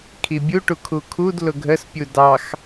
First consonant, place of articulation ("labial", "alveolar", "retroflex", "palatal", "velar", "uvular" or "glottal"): velar